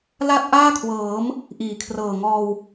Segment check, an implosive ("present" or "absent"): absent